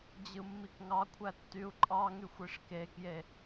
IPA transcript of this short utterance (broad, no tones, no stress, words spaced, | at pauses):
d͡ʑɯmːikŋɑkʷʰæ tːyu̯ǃʼɑŋyxʷ iʂkekje